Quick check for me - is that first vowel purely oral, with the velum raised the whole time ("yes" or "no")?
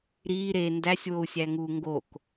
yes